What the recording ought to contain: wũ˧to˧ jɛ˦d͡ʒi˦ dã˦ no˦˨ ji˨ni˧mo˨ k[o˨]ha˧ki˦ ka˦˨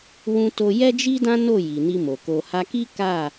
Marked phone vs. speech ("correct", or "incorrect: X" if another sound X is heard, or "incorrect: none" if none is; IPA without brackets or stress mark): correct